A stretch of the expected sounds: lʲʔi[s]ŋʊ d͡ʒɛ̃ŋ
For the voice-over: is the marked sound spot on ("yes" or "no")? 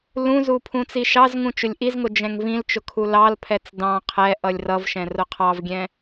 no